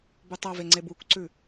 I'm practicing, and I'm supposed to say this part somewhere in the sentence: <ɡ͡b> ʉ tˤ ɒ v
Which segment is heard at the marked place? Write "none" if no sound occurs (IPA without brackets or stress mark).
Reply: b